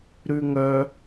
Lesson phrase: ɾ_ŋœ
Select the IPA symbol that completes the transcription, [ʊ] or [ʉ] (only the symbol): ʉ